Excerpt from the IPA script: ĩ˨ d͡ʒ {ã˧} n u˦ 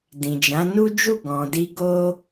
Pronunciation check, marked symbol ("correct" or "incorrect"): incorrect